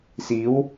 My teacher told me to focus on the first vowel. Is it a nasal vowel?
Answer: no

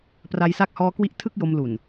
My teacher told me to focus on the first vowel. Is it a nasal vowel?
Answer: no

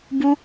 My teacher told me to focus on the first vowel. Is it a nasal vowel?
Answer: no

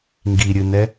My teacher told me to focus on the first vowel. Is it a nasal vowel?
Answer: no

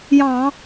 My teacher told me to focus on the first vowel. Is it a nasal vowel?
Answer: yes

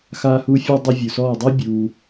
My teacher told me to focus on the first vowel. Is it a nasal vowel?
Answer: no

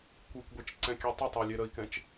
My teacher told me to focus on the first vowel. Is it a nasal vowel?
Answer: no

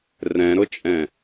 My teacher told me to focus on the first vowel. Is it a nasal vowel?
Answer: yes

